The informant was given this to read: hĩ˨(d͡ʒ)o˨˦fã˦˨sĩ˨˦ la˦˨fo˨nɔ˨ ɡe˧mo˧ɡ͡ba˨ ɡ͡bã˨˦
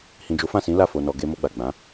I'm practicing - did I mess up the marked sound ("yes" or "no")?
no